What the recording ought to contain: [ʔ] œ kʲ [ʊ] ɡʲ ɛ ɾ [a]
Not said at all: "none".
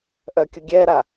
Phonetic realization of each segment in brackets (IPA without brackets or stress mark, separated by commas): ʔ, ʊ, a